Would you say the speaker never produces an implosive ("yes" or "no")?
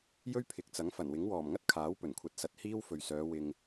yes